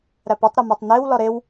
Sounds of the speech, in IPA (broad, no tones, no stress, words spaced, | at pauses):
ɾæpotˤɾɒmætˤ newlɒ ɾew